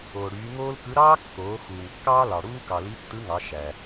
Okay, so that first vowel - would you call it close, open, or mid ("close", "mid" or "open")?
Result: mid